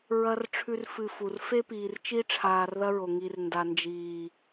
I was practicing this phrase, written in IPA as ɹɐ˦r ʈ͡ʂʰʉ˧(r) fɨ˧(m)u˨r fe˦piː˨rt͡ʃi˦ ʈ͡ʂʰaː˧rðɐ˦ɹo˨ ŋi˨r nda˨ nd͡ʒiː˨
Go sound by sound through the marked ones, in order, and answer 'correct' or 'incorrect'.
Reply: correct, incorrect

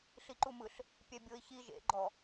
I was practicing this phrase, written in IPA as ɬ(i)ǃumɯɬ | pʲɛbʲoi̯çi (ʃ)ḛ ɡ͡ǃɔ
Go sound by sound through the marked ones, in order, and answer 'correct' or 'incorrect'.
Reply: correct, incorrect

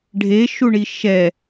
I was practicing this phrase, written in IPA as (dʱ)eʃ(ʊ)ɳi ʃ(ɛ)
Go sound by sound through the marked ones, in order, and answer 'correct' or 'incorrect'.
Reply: incorrect, incorrect, correct

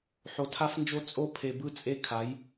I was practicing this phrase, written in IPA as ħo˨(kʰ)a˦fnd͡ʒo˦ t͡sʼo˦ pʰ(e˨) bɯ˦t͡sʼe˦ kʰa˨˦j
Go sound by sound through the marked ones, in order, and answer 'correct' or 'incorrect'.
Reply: incorrect, correct

